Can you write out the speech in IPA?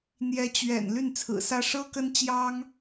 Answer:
n̪jɛ˧˥t͡ɕɥɛ̰˨˩n ly˥˩nt͡sʰɹ̩˨˩sä˥ ʂɤ˥kə˥nt͡ɕjɑ˥ŋ

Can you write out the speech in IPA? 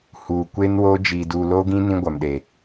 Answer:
huː˨kʷe˦nwoː˦ d͡ʒiː˨duː˨loː˦ɡĩ˦ nĩ˦ɡʷa˨mɗe˨

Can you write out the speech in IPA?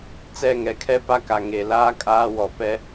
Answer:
t͡sɛ˦˨ŋɛ˨kʰɛ˦ pa˦ka˨ ŋe˨laː˦ kʼaː˦ wɔ˨ pɛ˦

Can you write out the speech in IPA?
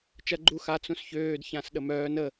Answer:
t͡ʃɐ ɡ͡ǃu xa t͡sũsçøːd çãsɗəmœːn ə

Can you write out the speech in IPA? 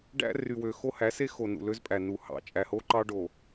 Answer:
ɖæ̰˦ ry˨wø˨ xo˦hæ˨˦se˦ xo˨ nṵ˨lø˦zpʼæ˨ nu˨hɑ̰˨ t͡ʃʼæ˨ho˦ ǃɑ˦ɖo˨

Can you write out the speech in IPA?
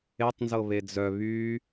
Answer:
etˤnzɤ βed͡zœ βy

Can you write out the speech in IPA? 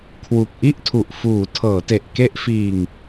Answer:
kʰwu˨˩k̚ʔi˥˩ʔtʰu˨˩ʔ fuː˩˦ tʰɤː˩˦te˨˩ʔ ke˦˥ʔfiː˧ŋ

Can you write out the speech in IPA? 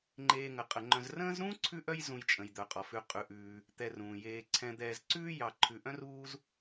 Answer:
ŋ͡ǃeː˨ŋə˩qʼə˩ŋ͡ǃœ̃˨z rə̃ː˦zɾũː˥ ǀʰʉ˥ʔœ˥j zũ˨jt͡ʃʼə̃˩jd̪œ˩ qʼɔ˩fʉ˨ qʼʉ˩ʔʉː˩ | t̪ɛ˨rũː˩jeː˨ ǀʰɛ̃˨d̪ɛː˨zǀʉː˥ jɑ˨ ǃʰʉ˨ʔœ̃˥ruː˦z

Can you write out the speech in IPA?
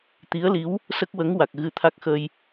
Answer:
t̪i˧˥ə̯li˧˥w | sə˦˥k̚wə˧˥ŋwa˨˩k̚ ɣɨ˧t̪ʰa˦˥k̚xə˧j

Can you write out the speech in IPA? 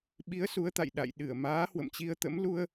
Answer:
ɓi˨˦ə̯ su˨˦ə̯t̪a̰˧˨j ɗa̰˧˨j ɗɨ˧˩ə̯maː˨˦ hwə̰˧˨mt͡ɕi˧ə̯t̪ə̰˧˥m lu˧ə̯

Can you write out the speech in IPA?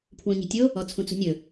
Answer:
pʰwũɲi̤tʲo | ɔt͡sʰũt͡sṳnʲɵ

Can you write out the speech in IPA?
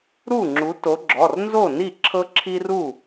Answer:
ɾu˥˩ŋ͡ǁu˨˦to˨˦ɡ͡ǁɔ˩˧˩r nzo˥˩ni˥˩ ǁʰɤ˦ǁʰi˦ru˥˩

